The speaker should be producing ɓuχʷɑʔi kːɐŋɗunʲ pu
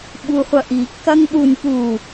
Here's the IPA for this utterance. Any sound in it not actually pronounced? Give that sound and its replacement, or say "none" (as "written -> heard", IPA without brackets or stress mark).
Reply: ɑ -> ɐ